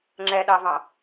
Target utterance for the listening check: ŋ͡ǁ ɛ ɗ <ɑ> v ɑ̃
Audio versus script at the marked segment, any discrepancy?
no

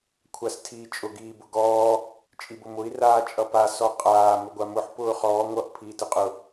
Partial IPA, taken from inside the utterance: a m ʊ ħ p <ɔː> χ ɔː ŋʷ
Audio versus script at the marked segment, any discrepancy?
yes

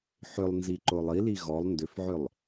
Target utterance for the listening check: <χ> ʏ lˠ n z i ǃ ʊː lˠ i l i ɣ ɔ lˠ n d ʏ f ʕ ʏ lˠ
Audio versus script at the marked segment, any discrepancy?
yes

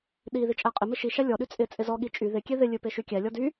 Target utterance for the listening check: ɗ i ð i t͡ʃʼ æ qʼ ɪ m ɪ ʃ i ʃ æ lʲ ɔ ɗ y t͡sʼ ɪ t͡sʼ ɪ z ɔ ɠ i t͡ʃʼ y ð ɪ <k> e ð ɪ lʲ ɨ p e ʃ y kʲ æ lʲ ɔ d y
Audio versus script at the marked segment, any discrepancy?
yes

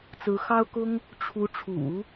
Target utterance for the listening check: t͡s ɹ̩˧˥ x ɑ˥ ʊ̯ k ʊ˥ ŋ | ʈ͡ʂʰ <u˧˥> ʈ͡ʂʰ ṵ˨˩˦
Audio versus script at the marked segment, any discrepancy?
no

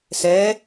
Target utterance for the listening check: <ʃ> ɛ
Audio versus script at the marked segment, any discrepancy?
yes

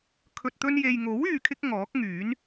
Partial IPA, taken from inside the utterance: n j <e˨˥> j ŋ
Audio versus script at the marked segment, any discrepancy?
yes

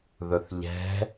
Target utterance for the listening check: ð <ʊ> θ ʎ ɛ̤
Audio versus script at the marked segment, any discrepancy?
no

